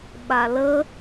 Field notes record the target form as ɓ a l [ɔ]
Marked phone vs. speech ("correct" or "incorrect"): incorrect